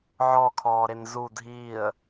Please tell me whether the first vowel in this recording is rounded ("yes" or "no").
yes